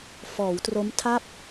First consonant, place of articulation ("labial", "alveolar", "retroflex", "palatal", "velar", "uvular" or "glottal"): labial